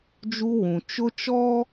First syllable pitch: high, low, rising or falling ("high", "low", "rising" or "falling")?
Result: high